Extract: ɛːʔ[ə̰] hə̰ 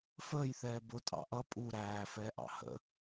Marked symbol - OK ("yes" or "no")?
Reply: no